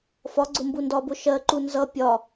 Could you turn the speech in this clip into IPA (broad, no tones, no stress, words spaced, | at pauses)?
fɒɡ͡ǀʊ mbundɒbʊ ʃɜǃu nzʌ pʲɒ